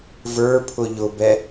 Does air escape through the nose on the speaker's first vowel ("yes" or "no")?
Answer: no